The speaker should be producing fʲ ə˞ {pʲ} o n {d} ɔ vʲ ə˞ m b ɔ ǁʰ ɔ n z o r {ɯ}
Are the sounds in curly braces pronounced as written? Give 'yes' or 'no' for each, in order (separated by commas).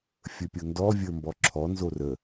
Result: yes, yes, no